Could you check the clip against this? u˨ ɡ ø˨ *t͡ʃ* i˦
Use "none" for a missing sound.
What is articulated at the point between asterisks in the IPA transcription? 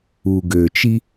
t͡ʃ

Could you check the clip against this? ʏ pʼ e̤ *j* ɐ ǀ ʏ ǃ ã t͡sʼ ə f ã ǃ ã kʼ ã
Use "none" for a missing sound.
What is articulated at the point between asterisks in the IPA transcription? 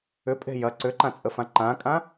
j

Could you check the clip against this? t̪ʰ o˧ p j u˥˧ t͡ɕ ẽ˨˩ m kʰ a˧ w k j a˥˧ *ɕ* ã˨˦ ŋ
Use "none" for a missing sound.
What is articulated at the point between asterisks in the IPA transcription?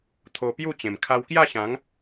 ɕ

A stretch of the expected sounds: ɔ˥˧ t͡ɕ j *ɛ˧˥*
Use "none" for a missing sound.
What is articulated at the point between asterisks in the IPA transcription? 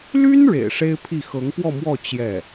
ɛ˥˩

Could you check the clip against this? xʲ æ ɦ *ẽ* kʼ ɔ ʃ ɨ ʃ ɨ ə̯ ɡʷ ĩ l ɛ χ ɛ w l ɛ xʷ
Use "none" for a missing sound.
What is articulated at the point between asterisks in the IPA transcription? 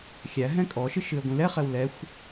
ɛ̃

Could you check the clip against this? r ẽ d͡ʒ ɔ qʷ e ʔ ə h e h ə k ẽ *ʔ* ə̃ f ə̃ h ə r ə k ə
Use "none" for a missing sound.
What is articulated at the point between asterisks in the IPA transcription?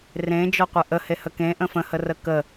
ʔ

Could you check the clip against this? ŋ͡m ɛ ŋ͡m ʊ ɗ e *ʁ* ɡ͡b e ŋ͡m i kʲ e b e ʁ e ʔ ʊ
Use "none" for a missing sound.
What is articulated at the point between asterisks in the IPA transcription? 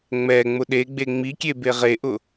none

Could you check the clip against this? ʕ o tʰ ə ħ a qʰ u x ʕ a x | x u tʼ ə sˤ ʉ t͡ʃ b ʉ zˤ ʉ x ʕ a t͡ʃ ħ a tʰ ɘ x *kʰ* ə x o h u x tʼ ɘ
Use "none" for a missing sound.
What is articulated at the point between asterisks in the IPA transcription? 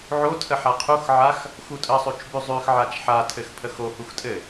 pʰ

